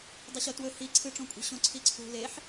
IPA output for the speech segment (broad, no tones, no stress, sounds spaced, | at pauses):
dˤ ɵ ɕ o t w ɵ h i ǀʰ ɨ ʈ͡ʂ õ kʷʼ i̤ ɕ õ ǀʰ i ǀʰ ṳ l e ħ